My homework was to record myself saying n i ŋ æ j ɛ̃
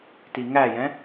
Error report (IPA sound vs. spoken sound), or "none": n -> t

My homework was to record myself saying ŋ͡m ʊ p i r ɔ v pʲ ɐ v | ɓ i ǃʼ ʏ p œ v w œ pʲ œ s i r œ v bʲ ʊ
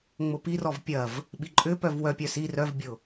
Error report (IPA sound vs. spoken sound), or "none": none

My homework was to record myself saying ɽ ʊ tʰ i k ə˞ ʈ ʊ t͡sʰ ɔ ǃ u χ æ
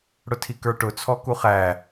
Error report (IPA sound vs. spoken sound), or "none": ǃ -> k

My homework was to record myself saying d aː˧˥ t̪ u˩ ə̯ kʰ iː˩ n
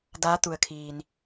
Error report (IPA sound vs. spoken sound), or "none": none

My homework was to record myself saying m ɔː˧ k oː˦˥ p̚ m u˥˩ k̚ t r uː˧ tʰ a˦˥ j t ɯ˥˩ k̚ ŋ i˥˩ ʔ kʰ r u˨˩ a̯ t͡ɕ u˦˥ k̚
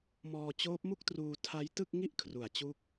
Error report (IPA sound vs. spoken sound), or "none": k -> t͡ɕ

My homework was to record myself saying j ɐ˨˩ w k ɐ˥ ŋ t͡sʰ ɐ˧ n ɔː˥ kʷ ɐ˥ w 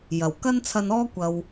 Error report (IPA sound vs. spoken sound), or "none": ŋ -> n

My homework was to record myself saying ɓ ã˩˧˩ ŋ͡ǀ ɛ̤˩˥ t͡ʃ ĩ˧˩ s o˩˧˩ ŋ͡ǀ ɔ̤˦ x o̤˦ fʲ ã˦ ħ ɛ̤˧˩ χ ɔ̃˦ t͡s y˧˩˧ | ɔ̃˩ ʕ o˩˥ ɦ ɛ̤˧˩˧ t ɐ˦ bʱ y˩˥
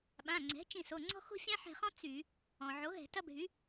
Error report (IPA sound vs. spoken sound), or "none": none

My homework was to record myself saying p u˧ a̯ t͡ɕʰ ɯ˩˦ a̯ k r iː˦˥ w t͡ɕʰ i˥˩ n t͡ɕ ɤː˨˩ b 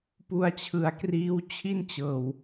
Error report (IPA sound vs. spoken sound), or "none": b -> w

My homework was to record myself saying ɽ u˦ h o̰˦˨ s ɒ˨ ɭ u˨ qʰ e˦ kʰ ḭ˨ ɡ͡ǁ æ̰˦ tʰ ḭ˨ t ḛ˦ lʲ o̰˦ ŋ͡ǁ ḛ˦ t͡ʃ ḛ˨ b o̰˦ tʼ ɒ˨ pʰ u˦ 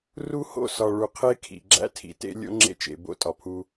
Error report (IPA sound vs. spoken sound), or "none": ɽ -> r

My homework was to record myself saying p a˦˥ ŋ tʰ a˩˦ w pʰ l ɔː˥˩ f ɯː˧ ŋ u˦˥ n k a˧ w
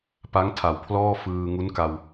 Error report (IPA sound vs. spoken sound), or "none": none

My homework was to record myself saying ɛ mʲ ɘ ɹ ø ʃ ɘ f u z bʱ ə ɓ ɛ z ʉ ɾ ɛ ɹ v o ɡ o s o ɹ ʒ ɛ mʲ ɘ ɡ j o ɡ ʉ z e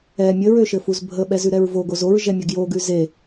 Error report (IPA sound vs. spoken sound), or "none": s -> z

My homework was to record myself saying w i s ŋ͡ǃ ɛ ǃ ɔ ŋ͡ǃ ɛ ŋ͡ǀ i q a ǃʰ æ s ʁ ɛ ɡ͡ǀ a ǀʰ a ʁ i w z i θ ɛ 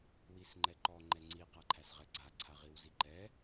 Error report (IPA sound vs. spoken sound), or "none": θ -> ǃ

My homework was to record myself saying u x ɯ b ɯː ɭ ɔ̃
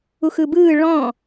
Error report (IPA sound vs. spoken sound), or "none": none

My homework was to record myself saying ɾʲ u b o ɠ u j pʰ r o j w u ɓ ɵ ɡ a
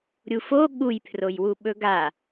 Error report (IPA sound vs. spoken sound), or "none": b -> f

